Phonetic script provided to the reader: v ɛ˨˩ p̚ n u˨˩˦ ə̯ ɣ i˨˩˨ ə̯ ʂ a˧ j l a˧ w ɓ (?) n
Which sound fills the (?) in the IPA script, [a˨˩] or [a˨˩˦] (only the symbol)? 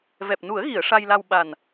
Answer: a˨˩